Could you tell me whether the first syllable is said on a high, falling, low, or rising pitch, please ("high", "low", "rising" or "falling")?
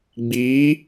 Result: rising